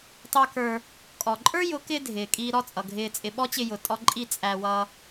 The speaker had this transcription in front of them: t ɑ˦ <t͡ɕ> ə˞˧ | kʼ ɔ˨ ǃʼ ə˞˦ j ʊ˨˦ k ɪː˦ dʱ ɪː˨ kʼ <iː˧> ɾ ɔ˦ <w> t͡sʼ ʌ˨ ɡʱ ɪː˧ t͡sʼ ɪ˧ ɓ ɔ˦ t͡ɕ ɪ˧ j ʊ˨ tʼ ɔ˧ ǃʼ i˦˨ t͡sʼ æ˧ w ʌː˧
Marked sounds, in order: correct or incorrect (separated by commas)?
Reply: incorrect, correct, incorrect